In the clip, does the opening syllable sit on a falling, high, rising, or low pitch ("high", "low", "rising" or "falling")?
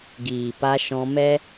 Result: low